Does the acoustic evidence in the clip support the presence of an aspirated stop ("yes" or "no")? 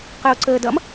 no